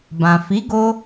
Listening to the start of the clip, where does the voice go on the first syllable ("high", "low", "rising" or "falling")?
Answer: low